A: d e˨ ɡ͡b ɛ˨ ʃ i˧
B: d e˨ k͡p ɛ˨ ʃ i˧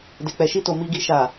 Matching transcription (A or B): B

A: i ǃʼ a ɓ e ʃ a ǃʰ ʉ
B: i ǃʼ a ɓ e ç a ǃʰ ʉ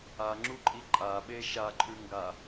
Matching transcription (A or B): A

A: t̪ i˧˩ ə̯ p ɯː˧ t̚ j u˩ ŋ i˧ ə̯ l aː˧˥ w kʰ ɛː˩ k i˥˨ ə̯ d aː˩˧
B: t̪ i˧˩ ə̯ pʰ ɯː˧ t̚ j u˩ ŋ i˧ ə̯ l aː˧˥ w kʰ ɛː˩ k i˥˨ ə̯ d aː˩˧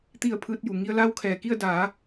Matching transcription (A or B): B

